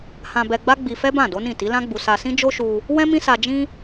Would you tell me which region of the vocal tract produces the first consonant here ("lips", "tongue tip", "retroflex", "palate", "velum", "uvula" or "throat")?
throat